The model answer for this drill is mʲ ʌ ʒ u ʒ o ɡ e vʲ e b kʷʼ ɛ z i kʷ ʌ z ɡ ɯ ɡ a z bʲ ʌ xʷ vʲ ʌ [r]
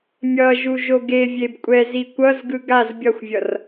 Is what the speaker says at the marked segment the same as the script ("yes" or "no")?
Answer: yes